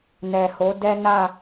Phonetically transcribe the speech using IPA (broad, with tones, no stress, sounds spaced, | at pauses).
n ɛ˨ h o˨˦ d ɛ˦ n a˦˨